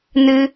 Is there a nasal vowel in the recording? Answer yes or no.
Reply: no